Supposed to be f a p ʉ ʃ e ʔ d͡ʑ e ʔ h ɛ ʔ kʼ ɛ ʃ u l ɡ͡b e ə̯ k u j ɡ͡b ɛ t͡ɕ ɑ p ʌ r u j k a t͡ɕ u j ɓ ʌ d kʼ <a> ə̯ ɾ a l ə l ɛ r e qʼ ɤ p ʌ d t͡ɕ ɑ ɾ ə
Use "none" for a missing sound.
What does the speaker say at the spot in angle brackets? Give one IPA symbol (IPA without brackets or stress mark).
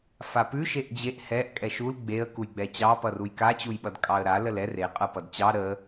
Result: ɑ